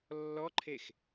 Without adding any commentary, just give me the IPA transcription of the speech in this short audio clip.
lː ɔ ǃʰ e x

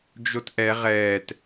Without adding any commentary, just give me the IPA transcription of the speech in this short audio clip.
d͡ʒ o t ʔ ɛ ʁ ɛː t

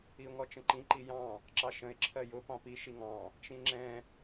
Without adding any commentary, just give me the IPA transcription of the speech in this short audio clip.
i ʊ̯ ŋ ɔ t͡ʃ ə̃ ǃ ĩ ǃ i j ɑ̃ | ǁ ɑ ʃ ə̃ ɪ̯ ǁʰ ɜ j ʊ p ɑ̃ p i ʃ i ŋ ɑ̃ | t͡ʃ ĩ ŋ͡ǁ ɛ̃

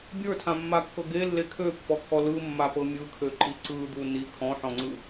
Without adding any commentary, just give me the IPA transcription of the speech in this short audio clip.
bʲ ə˞ tʰ ã mː a kː ɤ ɡ e lː e kʰ ø pː ɔ kʰ ɔ l ɯ mː a p ɤ mʲ ɯ kʰ ø ǃ i ǀ ɯ d̪ u n i kʰ ɔ̃ ħ ɔ̃ ŋ͡ǀ ɯ

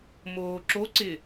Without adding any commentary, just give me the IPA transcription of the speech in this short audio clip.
m oː ǁ o ǀ ɪ

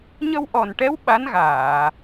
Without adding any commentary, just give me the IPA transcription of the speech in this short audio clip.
ɲ ə˧ w ʔ ɔ˨˩ n ʈ ɛ˧˥ w ɓ a˧˥ n ɣ aː˨˩˨

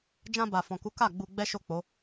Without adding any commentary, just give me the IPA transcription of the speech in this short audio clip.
d͡ʒ ã˧ b a˨ f ɔ̃˨ k u˨˦ k a˦˨ ɡ͡b u˧ ɡ͡b ɛ˦ ʃ o˦˨ k͡p o˨˦

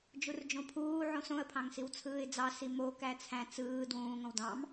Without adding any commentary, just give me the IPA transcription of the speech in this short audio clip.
d͡ʒ u r d͡ʒ õ pʰ uː ʕ õ s õ ə̯ pʰ ɑ̃ ŋ s i w t͡sʰ ɯː ɪ̯ d͡z ɑ s i m o k æ t͡sʰ æ̃ t͡s ɯː d w ũː ŋ õ w d ɑ̃ m

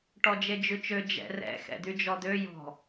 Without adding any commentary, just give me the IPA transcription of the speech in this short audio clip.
ʈ ɔ d͡ʒ e d͡ʒ ʉ t͡ʃ ø d͡ʒ ɛ̰ r ɛ̰ x ɛ̰ d̪ y d͡ʒ ɔ d̪ ø j ɔ̤

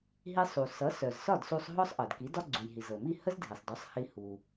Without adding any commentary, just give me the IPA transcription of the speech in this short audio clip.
ɦ i˧ sˤ u˩ s ʌ˩˥ s œ˩ z s ɒ˥˩ d s u˧ sˤ ɦ ɔ˥ sˤ ʔ ɤ˩ d k i˩˥ d ɒ˥ ɡ͡ǀ u˩ j ɦ i˩ z ɤ˩ m i˥˩ h ə˥ z dʱ i˩ sˤ d ɒ˩˥ sˤ h i˧ h u˩

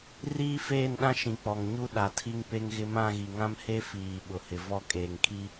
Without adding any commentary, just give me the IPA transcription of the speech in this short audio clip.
r iː˦ f eː˦˨ n ɗ ã˦ ʃ ĩ˨ k͡p ɔ˨ ŋ ɲ u˦ ɗ a˨ tʰ i˦ ŋ p e˦ ŋ ɣ ɪ˦ m ã˦˨ ɣ i˨ ŋ ã˦ m h e˦ f iː˨ ɓ ʊ˨ h ɪ˨ v ɔ˦ kʼ eː˨ ŋ kʰ i˦

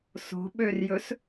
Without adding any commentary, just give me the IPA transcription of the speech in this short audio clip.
s o̤ ɓ ø r j ɵ s

